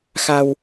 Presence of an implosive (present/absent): absent